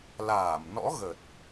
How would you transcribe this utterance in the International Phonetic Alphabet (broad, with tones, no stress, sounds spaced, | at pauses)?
l aː˧˩ m n ɔ̰˧˥ ɣ ə˨˩ t̚